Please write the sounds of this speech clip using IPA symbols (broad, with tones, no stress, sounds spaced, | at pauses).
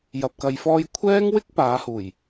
j ɐ˨ p̚ k ɐ˨˧ j f ɔː˧ j kʷʰ ɛː˥ ŋ w ɪ˥ k̚ p aː˨˥ h uː˨˩ j